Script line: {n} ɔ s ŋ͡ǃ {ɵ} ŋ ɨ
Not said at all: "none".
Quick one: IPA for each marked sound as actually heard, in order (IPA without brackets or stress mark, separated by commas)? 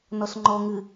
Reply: n, ɔ